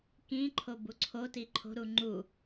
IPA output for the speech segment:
k ĩ ǃʰ o b u ǀʰ o t i ǃʰ o̤ ɾ u ŋ͡ǃ u

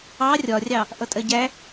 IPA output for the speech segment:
ɑ rʲ ɒ rʲ ɑ | ʔ ʌ tʼ ɜ ɟ æ

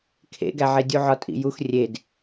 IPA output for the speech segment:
kʰ ḛ ɡ æ ʕ e dʲ u ʕ ɒ tʼ ḭ j u x rʲ e d

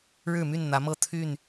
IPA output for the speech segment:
ɻ ɻ̩˥˨ m y˥˨ n n̪ ä˨˦ m ɤ˥˨ t̪ʰ y˥˨ n

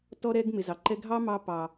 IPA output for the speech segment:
t ɔ˧ ɾ ɛ˧ ɡ m ɪ˨ z ɑ˨ ǃ ɛ˧ ɡʱ ɑ˦ m ɑ˧ p ɑ˨

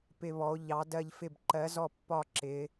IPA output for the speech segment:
p ɪ˦˨ β ɔ˨˦ o̯ ʎ ɑ˨˦ d ɜ˦˨ ʎ f ɪ˦˨ b ǃ ɜ˨˦ z ɔ˦˨ pː ɒ˦˨ ǁ ɪ˨˦

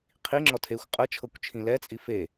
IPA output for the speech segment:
qʰ i ŋ͡ǁ ɔ tʰ e xʷ qʼ ɤ t͡ʃʰ ɤ kʷ t͡ʃʰ ĩ l ɛ t͡sʼ i f e

